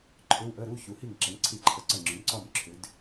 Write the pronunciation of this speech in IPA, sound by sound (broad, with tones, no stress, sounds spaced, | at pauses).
ǃʰ ʏ˧˥˧ w ʔ ə˧˥˧ ɾ u˧˥˧ ç u˩˧ h i˥˩ ŋ ǁ ə˩˥ ŋ ǀʰ i˥˩ ǃʰ ə˧ ǀ ə˥˩ ŋ͡ǁ ʏ˩˥ m ǀ ɒ˥˩ m ǁʰ ʏ˩˥ d